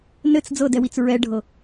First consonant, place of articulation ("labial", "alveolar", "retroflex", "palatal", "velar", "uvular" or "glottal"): alveolar